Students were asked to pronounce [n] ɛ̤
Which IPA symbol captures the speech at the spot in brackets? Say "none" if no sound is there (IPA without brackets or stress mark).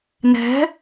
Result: n